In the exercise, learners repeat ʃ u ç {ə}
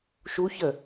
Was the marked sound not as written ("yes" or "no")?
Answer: no